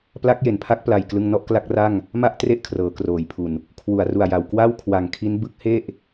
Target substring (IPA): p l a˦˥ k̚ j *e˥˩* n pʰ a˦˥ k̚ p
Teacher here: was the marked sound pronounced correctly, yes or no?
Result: no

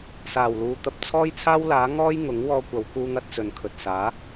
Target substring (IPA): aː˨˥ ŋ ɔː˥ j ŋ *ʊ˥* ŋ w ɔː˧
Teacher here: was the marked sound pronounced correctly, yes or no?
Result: no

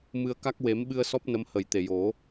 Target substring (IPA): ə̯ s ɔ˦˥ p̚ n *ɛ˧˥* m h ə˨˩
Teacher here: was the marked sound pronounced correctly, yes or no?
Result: no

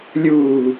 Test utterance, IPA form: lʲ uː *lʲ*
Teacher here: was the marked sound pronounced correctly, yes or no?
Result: no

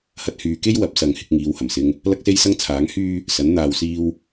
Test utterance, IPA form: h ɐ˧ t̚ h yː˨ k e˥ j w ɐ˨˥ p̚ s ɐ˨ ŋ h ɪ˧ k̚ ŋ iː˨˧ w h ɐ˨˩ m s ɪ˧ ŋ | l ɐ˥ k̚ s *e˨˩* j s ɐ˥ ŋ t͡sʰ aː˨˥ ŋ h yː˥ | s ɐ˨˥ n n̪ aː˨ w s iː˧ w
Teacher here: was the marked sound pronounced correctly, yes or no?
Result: no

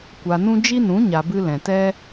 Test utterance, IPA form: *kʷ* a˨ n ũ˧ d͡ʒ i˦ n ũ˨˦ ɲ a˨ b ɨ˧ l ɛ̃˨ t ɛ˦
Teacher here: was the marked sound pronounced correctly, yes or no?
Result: yes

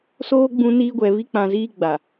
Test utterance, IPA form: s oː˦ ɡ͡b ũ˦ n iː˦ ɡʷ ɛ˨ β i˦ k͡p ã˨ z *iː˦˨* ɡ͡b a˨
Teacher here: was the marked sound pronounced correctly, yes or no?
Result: no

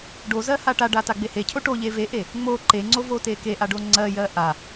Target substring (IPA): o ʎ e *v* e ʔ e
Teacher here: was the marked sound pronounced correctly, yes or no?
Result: yes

